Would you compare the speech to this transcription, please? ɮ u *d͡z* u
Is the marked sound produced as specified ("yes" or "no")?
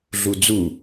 yes